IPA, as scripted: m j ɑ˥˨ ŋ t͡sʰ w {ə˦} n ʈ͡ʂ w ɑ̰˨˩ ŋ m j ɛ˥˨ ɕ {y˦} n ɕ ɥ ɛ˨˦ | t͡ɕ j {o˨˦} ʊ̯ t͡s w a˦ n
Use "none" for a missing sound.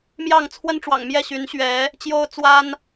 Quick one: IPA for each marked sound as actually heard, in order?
ə˦, y˨˦, o˦

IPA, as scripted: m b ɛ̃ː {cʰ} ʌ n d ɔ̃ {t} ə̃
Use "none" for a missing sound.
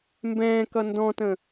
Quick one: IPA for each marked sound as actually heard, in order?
k, t

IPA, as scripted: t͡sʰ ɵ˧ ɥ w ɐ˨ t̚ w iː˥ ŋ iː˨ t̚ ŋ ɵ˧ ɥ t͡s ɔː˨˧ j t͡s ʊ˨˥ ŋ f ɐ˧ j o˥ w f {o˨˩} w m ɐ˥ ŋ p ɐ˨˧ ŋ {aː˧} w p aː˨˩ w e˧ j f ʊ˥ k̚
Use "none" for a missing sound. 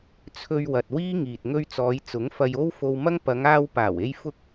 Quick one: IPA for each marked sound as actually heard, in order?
o˧, aː˧

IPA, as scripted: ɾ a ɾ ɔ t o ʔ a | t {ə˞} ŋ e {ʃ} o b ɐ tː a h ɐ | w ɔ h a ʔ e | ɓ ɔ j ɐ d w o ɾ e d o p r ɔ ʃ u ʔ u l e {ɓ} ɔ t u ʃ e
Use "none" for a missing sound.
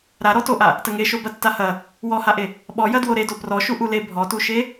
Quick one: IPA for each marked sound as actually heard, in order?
ə, ʃ, bʱ

